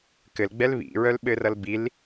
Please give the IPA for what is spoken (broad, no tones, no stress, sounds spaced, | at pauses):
k ɘ l ɡ͡b ɛ l β ḭ ɹ œ l ɓ ɘ r ʌ l b i l